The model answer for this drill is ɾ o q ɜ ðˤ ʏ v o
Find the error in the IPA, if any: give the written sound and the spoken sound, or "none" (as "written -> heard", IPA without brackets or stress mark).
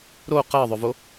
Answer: none